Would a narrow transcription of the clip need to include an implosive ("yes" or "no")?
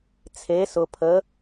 no